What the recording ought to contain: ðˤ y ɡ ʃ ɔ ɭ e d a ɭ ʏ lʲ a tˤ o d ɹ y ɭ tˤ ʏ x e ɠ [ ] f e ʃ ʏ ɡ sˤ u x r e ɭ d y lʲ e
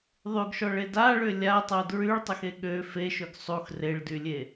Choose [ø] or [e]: ø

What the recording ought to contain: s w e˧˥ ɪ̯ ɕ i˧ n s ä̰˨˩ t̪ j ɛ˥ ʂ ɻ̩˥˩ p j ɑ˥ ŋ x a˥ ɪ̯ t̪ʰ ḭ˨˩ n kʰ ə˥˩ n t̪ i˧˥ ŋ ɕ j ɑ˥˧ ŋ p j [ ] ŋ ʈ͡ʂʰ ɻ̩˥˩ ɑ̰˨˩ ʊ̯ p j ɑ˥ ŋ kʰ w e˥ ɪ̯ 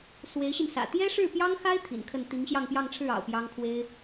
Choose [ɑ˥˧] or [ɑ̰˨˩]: ɑ˥˧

